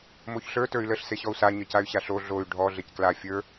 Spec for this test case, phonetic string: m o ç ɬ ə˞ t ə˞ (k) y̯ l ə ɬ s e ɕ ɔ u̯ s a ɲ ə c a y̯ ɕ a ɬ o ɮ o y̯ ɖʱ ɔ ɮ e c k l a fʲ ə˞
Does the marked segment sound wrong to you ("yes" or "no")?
yes